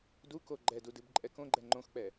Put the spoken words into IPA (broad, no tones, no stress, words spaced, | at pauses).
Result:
duko ɡ͡ǃɛdu dɨbǃʼɛkõɡ͡ǃɛ ŋ͡ǃõxk͡pɛ